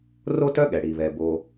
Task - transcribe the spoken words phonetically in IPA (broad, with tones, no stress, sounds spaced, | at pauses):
r o˥ t œ˥ ɠ ɛ˩ ɽ i˩ β ɛ˩ b o˨